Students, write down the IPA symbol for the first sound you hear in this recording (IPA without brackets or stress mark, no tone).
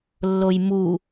lː